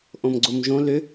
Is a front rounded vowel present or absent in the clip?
present